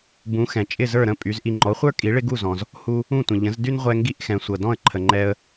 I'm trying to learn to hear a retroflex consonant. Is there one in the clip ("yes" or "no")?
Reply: yes